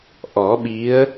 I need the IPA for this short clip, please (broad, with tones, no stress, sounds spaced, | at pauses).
ʔ ɔ˨˩˦ ɓ i˧˥ ə̯